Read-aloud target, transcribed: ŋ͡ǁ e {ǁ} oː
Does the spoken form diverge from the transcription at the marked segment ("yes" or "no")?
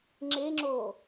yes